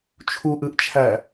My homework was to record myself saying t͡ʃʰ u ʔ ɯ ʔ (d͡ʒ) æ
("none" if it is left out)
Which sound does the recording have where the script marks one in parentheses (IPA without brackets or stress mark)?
t͡ʃʰ